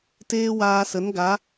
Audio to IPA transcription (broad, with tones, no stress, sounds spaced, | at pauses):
t eː˦ w aː˧ s ə˨˦ n ɡ a˨˦